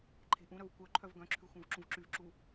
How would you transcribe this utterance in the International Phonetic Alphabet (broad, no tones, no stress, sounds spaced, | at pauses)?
ǃʰ e̤ ʔ ũ ɾ œ v kʷ œ ǃʰ œ v ɡ œ̃ ǁʰ ʉ xʷ œ̃ v ǁ ũ v ǁ y v ǁ u